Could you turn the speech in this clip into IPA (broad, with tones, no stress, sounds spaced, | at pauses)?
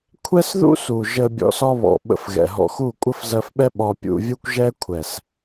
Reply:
kʷʰ ɛ˦ s ð ṵ˦ s u˨ ʒ ə˧ bʲ ɔ̰˧ s ɒ˦ β ɔ̰˨ ɓ ə̰˧ f ɣ ɛ̰˨ ɦ ɔ̰˧ x u˦˨ kʷʼ ə˦ f z ɜ˧ f ɓ ɛ˦ ɓ ɒ˧ pʲ ṵ˧ vʲ u˦ kʷ ʒ ɛ˦ kʷʰ ɛ˨ s